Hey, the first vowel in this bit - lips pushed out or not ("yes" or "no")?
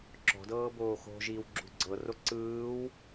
yes